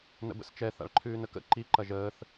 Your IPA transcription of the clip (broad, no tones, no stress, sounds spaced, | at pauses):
n ə̰ b ə̰ s t͡ʃ ɛ θ a̰ ɭ ǃʰ ʉː n ə k ə̰ ǃ i ǃ ɐ ʒ əː θ